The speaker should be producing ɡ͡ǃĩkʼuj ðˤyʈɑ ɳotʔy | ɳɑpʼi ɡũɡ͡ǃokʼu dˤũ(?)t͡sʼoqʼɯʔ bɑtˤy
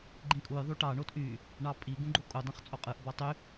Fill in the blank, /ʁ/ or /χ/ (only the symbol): χ